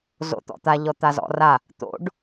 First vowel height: mid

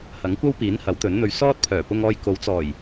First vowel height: low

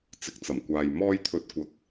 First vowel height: high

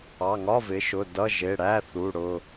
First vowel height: low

